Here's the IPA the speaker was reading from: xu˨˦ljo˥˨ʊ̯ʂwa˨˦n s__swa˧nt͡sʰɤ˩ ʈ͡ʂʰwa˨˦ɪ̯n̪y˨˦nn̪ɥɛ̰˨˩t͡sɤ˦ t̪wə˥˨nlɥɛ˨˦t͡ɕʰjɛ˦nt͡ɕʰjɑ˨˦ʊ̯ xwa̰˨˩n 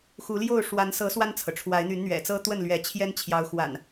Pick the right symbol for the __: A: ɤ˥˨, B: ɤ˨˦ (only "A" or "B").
B